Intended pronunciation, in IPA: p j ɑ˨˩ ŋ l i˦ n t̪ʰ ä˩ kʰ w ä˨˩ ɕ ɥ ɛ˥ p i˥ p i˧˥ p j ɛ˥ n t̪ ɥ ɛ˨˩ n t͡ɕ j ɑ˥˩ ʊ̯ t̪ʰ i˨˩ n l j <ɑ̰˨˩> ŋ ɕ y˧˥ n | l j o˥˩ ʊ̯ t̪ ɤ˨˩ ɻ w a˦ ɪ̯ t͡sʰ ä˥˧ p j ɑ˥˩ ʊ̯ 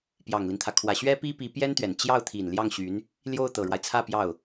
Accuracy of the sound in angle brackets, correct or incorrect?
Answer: incorrect